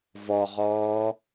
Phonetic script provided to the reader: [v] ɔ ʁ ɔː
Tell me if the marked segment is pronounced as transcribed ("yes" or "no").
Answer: yes